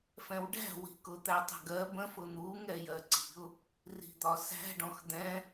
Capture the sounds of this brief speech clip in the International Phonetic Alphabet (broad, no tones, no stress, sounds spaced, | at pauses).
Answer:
f ɛ̃ w ɖ æ̤ w i̤ k ʊ t̪ æ tˤ ɛ̤ ɡ ɜ b ə̃ f ʊ n̪ u ŋ ɛ j ɜ ǀ i̤ ʊ̯ | r i̤ d̪ ɒ s æ̤ ɖ ɔ̃ x d̪ ɛ̃